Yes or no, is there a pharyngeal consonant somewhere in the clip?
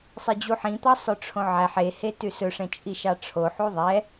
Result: yes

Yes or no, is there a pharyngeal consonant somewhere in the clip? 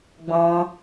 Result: no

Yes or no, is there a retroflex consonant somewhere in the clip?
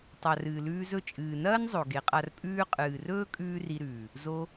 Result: no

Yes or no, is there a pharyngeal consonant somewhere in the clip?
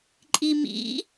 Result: no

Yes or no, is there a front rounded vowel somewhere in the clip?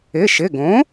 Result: no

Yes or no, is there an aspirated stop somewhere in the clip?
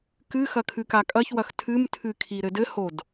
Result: yes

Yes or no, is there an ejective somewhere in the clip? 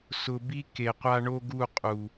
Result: yes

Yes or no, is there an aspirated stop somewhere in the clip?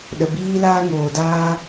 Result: no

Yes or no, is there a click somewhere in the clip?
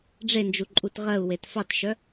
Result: yes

